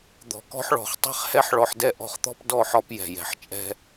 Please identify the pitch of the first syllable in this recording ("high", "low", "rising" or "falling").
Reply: low